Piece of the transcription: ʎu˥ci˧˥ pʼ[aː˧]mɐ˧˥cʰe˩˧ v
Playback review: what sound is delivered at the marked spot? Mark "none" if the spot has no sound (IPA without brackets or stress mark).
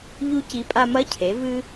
a˧